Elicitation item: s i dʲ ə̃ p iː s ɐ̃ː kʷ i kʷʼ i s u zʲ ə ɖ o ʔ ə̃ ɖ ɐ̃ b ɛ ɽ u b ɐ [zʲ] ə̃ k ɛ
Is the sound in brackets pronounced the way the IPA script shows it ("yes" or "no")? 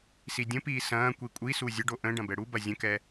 yes